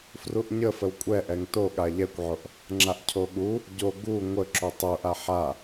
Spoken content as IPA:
fruʔɲəfəw kʷʼɛʔɛŋ to ɠaʎɛkʷʕoʔ | ŋ͡ǁaʔcʰoɠu | ɟo ɡu ŋʷə ǁutˤuʔa ħa

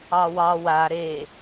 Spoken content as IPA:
ɑwɑ wa ɾe

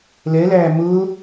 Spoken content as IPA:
lɛlæː mʊː

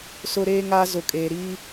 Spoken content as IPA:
sʊ˦ɾeː˦ŋa˦ zʊ˨kʼeː˨ ɾiː˦

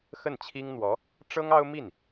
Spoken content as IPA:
xə˥˩nt͡ɕʰi˥ŋn̪wɔ˧˥ | ʈ͡ʂɤ˥ŋɑ˥ʊ̯ mi˥˩n

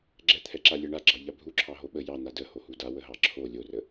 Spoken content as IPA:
ɡ͡ǁɛt̪ʰɛǁa lʲɛɳaɡ͡ǁɑ ʎabʱuǁʰɑ ɦoɓə jɑn̪a də hohuda wəɦɑǁʰo lʲorə

